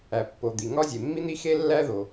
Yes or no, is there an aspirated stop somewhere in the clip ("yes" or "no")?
no